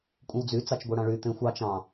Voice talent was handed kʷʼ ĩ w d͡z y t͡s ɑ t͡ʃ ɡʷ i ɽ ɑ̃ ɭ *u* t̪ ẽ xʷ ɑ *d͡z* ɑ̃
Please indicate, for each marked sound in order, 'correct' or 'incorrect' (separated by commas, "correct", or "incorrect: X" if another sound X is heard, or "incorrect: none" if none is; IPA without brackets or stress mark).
incorrect: y, incorrect: t͡ʃ